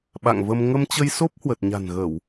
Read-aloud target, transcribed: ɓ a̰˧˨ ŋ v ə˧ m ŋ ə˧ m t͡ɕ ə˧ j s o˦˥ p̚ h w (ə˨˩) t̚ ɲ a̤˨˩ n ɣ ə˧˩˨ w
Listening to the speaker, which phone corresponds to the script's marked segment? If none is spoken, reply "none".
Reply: ə˨˩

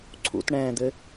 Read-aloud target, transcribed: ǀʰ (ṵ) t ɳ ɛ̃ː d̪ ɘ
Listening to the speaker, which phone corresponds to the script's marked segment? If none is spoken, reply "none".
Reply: ṵ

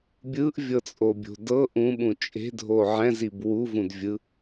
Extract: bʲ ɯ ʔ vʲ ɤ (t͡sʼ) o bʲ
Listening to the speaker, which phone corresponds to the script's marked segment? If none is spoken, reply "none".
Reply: t͡sʼ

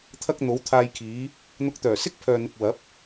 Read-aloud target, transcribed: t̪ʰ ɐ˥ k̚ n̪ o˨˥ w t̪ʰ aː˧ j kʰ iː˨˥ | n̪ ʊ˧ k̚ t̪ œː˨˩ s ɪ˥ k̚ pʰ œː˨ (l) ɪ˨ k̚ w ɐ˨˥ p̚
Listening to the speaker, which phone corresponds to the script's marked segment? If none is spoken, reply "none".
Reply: n̪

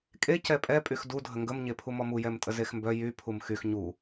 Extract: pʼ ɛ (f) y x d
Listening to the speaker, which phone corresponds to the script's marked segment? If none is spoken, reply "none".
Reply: pʼ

